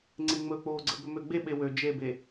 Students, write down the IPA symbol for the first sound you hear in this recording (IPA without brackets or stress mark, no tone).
ŋ͡ǀ